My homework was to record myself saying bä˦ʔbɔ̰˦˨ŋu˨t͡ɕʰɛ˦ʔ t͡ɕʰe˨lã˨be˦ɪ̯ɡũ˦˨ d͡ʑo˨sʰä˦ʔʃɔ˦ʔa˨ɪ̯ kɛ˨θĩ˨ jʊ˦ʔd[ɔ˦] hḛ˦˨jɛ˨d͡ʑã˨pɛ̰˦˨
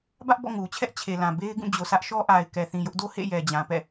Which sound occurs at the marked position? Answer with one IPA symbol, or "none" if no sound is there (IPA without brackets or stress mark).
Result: o˦